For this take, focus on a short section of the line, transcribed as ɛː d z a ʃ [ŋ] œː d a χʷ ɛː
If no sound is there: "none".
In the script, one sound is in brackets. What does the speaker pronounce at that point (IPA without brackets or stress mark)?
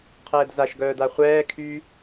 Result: ɡ